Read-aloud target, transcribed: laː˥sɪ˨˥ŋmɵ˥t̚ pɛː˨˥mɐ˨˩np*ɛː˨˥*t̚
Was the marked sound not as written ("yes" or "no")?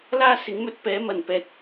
no